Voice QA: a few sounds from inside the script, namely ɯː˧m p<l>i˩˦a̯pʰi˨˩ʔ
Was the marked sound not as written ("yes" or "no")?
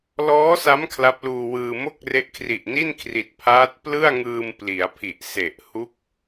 no